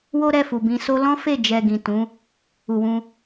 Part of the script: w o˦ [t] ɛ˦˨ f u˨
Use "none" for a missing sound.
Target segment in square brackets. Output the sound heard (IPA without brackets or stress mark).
ɾ